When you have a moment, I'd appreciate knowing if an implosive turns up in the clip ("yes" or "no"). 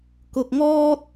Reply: no